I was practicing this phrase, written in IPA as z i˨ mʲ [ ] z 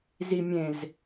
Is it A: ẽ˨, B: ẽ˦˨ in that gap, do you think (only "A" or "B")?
A